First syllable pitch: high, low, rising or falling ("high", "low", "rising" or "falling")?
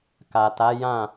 low